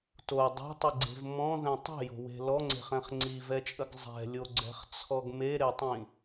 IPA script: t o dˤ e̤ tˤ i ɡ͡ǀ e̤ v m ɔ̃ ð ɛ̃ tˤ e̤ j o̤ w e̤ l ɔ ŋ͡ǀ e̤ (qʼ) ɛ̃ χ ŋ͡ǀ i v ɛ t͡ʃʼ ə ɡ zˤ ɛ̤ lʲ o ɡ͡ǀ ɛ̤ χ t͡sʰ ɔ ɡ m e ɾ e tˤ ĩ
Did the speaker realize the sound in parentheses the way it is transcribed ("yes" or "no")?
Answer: no